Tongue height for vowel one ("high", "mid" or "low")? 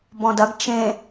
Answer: mid